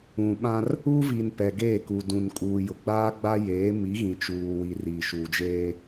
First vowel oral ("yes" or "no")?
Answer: no